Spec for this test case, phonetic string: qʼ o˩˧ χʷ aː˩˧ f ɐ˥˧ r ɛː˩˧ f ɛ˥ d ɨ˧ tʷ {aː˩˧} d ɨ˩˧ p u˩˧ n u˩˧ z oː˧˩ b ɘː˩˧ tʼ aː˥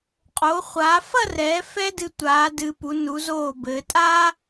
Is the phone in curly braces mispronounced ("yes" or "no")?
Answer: no